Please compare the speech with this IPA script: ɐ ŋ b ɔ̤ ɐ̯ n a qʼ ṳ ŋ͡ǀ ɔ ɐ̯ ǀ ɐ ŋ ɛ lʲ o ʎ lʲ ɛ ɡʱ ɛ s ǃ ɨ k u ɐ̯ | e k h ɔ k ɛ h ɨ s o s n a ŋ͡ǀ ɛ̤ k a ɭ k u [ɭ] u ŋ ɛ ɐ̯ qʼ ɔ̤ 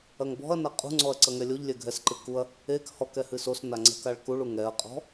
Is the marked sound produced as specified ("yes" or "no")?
yes